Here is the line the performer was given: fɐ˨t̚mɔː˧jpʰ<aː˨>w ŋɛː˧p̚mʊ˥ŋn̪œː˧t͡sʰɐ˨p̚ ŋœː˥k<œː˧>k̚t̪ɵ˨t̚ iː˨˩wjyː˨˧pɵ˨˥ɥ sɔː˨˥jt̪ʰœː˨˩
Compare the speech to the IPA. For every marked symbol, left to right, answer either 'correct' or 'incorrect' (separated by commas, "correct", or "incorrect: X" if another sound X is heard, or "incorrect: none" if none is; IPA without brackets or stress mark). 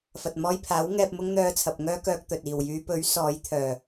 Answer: incorrect: aː˨˥, correct